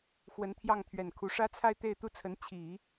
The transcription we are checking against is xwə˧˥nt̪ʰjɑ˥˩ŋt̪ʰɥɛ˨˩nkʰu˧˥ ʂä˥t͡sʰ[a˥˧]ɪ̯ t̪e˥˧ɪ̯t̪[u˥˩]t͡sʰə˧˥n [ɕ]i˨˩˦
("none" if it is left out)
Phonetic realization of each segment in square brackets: a˥˧, u˥˩, t͡ɕʰ

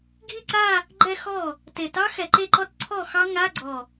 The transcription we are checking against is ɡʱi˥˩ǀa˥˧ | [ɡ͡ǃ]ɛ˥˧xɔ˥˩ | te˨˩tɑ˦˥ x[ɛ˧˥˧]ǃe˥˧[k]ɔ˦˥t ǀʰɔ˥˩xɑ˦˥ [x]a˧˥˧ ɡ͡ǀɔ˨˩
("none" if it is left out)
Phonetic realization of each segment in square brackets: ɡ͡ǃ, ɛ˨˩, ǃ, ŋ

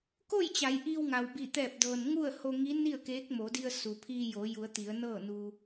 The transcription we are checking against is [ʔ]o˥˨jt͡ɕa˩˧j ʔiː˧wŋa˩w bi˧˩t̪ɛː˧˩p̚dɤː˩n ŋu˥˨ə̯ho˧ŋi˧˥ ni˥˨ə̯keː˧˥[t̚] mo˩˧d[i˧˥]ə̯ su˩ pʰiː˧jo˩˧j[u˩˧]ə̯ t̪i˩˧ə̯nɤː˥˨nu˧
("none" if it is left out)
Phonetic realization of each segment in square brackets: k, k̚, i˧, u˩˧

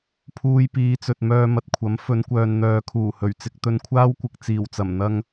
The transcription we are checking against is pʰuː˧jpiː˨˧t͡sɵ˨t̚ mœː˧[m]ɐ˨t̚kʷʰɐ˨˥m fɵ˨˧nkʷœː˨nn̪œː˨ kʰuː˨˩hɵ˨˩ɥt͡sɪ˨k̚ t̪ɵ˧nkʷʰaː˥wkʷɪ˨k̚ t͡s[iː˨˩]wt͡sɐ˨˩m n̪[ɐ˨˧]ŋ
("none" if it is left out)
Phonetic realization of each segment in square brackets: m, iː˨˩, ɐ˧

